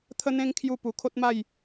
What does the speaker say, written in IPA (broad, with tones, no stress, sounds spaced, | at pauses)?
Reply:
t̪ʰ ə˦ n̪ ẽ˦ ŋ kʰ j u˧ p u˨˩ kʰ o˦ t̚ m a˥˧ j